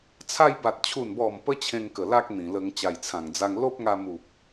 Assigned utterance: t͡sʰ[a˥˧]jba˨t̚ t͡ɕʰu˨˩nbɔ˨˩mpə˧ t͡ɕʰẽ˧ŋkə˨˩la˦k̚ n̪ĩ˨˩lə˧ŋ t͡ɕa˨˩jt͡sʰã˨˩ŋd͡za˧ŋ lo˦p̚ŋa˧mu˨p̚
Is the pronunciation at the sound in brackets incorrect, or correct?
incorrect